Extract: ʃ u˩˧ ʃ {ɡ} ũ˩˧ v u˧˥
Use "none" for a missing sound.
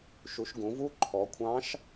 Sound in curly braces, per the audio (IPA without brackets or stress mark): ɡ